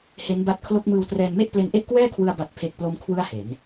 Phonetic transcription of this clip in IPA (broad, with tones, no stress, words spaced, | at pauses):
he˦˥nba˦˥t̚kʰlo˦˥k̚ mɯː˧wtrɛː˧nme˥˩ʔ ple˧nʔe˥˩ʔkwɛː˥˩kʰwɯ˧a̯ ba˨˩t̚pʰe˨˩k̚ plo˦˥m kʰwɯ˥˩a̯he˩˦n